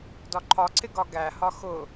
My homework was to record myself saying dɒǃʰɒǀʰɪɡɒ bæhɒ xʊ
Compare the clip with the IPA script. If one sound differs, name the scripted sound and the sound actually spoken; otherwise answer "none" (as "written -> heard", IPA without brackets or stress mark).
b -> ɡ